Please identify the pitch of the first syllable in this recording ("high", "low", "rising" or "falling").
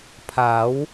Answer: rising